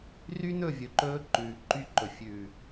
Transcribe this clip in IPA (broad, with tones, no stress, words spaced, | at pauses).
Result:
ry˦nɵ˦˨vʲɵ˨ǃɵː˧ ǃʉː˨ǃy˦ǃɵ˨ fʲʉ˨